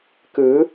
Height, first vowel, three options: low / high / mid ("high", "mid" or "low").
high